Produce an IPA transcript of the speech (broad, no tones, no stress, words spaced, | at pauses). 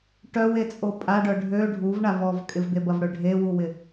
ʈœwet͡sʼo pʼaɖœ ɖʱø ɖʱuvɳav ɔv kʼɪvd̪ebɐvɽø ɖʱewuwɪ